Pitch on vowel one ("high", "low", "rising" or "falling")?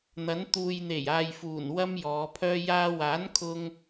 rising